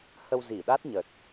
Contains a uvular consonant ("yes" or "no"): no